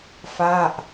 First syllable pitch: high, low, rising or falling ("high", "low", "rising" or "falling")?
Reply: falling